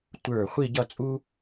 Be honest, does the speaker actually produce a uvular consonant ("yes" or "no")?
yes